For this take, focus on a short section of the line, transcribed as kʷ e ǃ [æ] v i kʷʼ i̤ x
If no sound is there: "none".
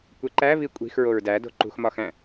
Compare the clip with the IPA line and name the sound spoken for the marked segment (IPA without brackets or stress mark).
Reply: æ